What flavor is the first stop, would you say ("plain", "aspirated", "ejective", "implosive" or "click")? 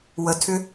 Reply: aspirated